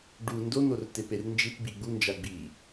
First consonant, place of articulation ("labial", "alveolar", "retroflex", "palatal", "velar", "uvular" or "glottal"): retroflex